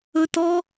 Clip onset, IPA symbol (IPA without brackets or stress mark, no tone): ɵ